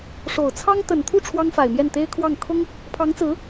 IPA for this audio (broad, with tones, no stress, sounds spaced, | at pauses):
ʂ o˨˩ ʊ̯ t͡sʰ ɑ˥ ŋ t̪ ə˨˩ n t̪ʰ u˥˩ ʈ͡ʂʰ w ɑ˥ ŋ f a˨˩ ɪ̯ m j ɛ˥˩ n t̪ e˥ ɪ̯ kʰ w ɑ˥˩ ŋ kʰ ʊ˥ ŋ | pʰ ɑ˧˥ ŋ t͡s ɹ̩˧˥